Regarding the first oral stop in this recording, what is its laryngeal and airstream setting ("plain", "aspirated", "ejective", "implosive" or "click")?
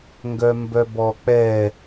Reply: plain